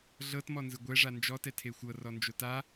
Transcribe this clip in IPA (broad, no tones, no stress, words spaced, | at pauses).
ɮɤtmɔnzɯ ɡʷɛʐa nd͡ʒɔtɛ tʰexʷɤr ɔnd͡ʒota